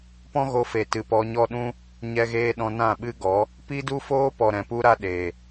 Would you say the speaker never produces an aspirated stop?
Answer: yes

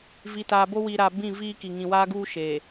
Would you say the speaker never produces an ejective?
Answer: yes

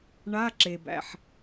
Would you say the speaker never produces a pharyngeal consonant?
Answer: no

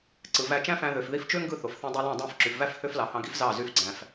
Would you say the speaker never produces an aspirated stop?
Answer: yes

